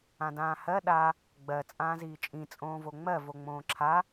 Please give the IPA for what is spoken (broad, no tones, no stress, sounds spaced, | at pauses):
ã d ãː h ɜ ɗ a | ɡ͡b ɜ t͡sʼ ãː z iː t͡ʃʼ ĩ t͡sʼ õː v o ŋ͡m ɜ v o ŋ͡m õː ǁʰ a